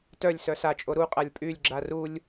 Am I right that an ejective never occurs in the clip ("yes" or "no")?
no